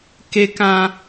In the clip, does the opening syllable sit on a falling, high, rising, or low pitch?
low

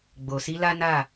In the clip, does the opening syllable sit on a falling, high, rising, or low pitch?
low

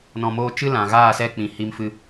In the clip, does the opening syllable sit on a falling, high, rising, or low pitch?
low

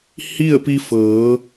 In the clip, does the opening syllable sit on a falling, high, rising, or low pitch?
falling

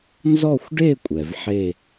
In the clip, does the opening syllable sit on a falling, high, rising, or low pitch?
falling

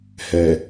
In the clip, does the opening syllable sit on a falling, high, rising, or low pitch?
low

